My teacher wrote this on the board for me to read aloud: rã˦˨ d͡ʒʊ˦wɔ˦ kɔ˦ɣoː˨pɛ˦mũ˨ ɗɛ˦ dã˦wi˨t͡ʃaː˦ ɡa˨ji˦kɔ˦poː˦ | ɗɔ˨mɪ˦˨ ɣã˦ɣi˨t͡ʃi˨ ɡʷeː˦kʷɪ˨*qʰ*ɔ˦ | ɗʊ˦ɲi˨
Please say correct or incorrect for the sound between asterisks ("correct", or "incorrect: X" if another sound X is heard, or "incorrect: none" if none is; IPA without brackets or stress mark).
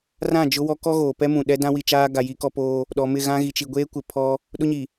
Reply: incorrect: pʰ